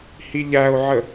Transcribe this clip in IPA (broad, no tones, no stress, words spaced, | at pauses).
hiʎæo̯ʕə